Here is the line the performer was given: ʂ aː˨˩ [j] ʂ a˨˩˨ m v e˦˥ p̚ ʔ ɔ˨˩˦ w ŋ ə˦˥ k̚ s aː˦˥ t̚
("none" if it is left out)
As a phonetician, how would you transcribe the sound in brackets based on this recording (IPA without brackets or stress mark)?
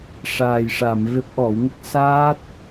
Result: j